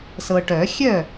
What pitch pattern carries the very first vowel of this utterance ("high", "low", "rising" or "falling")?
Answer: low